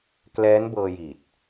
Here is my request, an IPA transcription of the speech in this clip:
k l ɛː˦˥ n b ɤː˧ j i˨˩ t̚

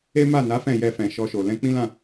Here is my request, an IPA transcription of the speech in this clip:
e˦ m a˦˨ n a˨˦ f ɛ̃˦˨ j ɛ˧ f ɛ̃˨ ʃ ɔ˧ ʃ o˨ l ɛ̃˧ k͡p ĩ˦ l ã˦˨

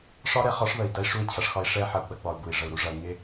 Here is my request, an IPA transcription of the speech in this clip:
ʂ ɒ˦ ɾ ɛ˨ χ ɒ˦ ʂ β ə˨ i̯ d ɐ˦ i̯ ʂ u˦˨ i̯ t͡ɕʰ ɐ˨ ʂ x ɒ˦ i̯ ʂ ɛ˦ ħ ɐ˨ u̯ ɡ͡b ɐ˦ ɡ͡b ɒ˨ u̯ b u˨ i̯ ʐ ə˨ u̯ ɾ u˨˦ ʐ ɐ˨ u̯ ŋ ɪ˦

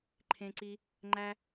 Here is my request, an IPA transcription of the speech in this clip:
ǃʰ ẽ˥ ǀ i˥ | ŋ͡ǃ æ˥

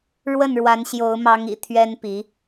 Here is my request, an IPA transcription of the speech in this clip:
ɻ w ə˥˩ n ɻ w a˧˥ n ɕ j o˧˥ ʊ̯ m ɑ˧˥ ŋ ḭ˨˩ t̪ʰ ɥ ɛ˥ n p i˧˥

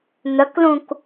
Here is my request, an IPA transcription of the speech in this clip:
n̪ ə k l ũ k

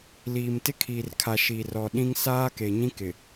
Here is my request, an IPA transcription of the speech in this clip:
l iː˨ m t ɪ˦ kʰ iː˨ r kʰ a˨ ʃ i˨ r ɔ˨ ɗ ĩ˦ ŋ s aː˦ k e˨ ɲ ĩ˦ k ɪ˨

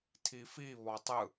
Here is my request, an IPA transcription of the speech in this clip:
tʰ i f i β ɔ tˤ ɯ

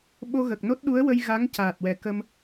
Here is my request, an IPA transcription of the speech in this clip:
ɓ o˧ ɣ ə˨˩ k̚ n o˦˥ t̚ ɗ u˧˥ ə̯ w ə˧ j ɣ a˧˥ ŋ c aː˨˩ t̚ w ɛ˨˩ k ə˧ m

